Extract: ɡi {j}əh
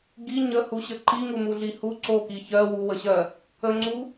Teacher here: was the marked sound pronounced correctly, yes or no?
no